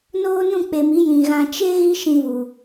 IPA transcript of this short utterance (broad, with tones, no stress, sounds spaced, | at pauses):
n oː˦ n ũ˦˨ k͡p e˨ m i˨˦ j ĩ˨ ɣ ã˧ t͡ʃ e˦ ɣ i˦ ʃ ĩ˧ v u˨